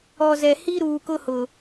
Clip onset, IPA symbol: ɔ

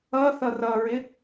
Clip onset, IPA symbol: ʌ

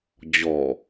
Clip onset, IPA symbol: d͡ʑ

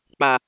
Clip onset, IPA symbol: k͡p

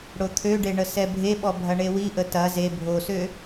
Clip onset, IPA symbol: ɽ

